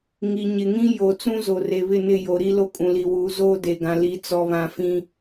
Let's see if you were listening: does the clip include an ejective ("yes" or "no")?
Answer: yes